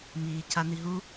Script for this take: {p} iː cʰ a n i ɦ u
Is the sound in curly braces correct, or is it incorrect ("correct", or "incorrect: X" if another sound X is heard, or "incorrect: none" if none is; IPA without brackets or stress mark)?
incorrect: m